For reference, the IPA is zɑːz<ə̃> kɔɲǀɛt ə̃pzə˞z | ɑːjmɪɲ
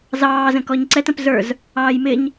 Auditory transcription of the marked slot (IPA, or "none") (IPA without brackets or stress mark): ə̃